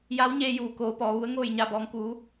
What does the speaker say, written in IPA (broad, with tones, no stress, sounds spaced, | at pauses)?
j a˧˥ w ɲ eː˧ j uː˩ k oː˩˧ p ɔː˩˧ ʋ u˧˥ ə̯ ŋ oː˥˨ j ɲ a˧˩ b ɔː˩˧ ŋ k uː˩˧